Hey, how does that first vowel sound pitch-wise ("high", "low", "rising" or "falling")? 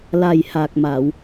low